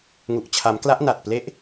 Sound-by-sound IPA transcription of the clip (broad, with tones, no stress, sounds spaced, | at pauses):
ŋ u˨˩ ʔ t͡ɕʰ a˩˦ m k l a˦˥ ʔ n a˨˩ t̚ p l e˦˥ ʔ